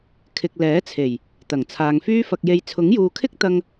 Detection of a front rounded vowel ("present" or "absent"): present